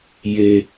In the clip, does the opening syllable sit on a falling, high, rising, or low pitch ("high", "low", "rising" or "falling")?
low